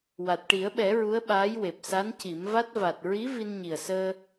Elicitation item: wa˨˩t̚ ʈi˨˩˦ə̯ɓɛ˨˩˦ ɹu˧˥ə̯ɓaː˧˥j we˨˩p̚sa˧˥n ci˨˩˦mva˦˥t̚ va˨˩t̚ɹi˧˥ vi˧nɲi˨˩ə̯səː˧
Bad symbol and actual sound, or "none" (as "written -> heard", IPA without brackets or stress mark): none